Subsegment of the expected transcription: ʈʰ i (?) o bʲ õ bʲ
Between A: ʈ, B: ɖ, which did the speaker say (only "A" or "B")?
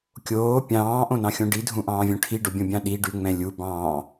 B